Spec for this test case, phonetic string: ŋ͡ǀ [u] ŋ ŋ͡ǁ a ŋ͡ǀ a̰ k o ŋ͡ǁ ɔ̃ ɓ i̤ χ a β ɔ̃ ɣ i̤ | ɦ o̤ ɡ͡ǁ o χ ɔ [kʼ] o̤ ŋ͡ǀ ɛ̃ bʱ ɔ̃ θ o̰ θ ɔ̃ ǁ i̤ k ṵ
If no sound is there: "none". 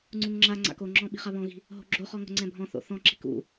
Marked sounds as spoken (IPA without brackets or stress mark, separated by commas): u, ŋ